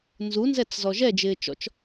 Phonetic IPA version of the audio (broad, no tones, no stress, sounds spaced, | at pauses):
n z u n z ɛ t͡s z ɔ ʒ ɛ d͡ʒ ɪː t͡ʃ ɔ̰ t͡ʃ